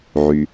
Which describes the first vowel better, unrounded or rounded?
rounded